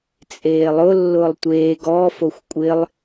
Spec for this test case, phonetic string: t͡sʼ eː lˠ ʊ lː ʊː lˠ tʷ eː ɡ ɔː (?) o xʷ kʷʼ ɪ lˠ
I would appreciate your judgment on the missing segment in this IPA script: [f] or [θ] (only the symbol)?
f